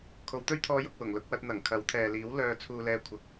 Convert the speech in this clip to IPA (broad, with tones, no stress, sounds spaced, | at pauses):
kʰ o˨˧ w t̪ ɵ˥ ɥ t̪ʰ ɔː˧ j ʊ˨ k̚ w ʊ˨˩ ŋ l ʊ˧ k̚ w ɐ˧ t̚ n̪ ɐ˨˩ ŋ kʰ ɐ˨˥ w t̪ʰ ɛː˨ l iː˨˥ w l œː˨ t͡sʰ uː˨ l ɛː˨ kʷʰ ɐ˨˥ k̚